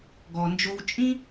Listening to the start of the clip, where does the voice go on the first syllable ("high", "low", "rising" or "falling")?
low